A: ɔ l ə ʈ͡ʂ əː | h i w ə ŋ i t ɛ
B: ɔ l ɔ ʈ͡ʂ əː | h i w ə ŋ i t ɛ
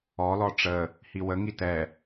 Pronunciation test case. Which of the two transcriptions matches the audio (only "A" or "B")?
B